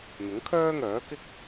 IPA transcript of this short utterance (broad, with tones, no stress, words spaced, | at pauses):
n̪ʊ˨˥ŋkʰœː˥ŋœː˨˥ kɪ˥k̚